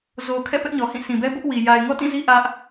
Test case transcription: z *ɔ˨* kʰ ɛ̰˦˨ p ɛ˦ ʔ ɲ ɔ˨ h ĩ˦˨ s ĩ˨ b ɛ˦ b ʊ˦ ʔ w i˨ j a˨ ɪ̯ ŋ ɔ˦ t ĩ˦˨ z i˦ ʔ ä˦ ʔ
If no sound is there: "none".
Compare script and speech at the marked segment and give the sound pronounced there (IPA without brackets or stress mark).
o˨